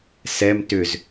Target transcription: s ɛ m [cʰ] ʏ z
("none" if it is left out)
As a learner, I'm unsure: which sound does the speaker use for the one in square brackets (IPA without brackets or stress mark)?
t